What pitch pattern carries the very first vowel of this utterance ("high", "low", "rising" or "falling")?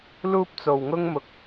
high